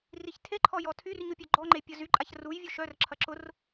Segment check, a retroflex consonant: absent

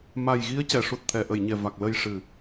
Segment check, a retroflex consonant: present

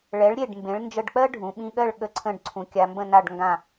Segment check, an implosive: present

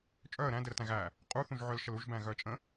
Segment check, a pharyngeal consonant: present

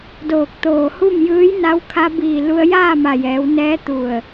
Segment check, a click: absent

